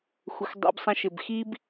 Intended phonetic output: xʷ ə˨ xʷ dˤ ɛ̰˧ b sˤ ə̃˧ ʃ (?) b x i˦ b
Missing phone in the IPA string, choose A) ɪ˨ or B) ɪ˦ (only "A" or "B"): A